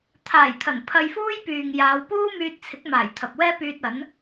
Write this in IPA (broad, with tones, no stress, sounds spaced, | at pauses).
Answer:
t̪ʰ aː˨˩ j t̪ʰ ɐ˨˩ n pʰ ɐ˧ j f uː˥ j p yː˨ ŋ j aː˨˧ w p uː˥ m yː˧ t̚ t͡sʰ ɪ˨˥ k̚ m aː˨˩ j t̪ʰ ɐ˨ p̚ w ɛː˥ p yː˧ t̚ ɐ˨˥ n